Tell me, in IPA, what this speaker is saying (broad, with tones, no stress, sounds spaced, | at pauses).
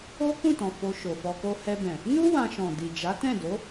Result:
o˦ k ũ˦˨ t ɔ̃˨ f o˧ ʃ o˨ f ɔ˧ k o˦ h ɛ˧ b ɛ̃˨ | n u˦ w ã˧ ʃ ɔ̃˨ d i˨ d͡ʒ a˨˦ t ɛ̃˦˨ d o˨˦